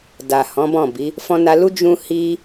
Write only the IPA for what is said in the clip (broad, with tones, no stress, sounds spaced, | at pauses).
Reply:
d a˨ h ɔ̃˨˦ b ɔ̃˦˨ b i˨˦ | f ɔ̃˧ n a˧ l u˦ d͡ʒ ũ˦ h i˦